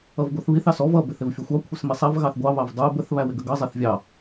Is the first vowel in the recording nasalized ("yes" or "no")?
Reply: no